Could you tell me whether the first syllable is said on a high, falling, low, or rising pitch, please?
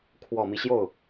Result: low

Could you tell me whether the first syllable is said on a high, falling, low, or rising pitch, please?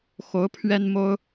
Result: rising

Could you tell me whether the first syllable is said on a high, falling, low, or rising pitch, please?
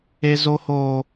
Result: high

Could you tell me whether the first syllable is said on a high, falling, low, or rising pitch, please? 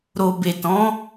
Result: low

